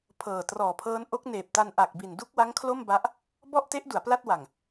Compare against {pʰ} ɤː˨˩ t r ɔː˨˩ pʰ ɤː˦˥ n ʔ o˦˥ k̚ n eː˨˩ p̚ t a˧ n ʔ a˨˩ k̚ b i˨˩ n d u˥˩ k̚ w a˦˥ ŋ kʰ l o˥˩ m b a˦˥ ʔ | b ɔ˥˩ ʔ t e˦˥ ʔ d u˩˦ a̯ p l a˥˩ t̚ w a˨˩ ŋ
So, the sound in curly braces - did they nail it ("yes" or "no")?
yes